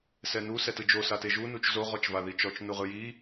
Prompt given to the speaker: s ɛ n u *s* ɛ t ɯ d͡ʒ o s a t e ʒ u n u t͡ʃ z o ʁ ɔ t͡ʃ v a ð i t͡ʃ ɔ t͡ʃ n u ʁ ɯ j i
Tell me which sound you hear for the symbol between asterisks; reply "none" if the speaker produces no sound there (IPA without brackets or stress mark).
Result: s